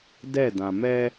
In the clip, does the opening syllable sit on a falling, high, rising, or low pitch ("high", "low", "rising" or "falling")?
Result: falling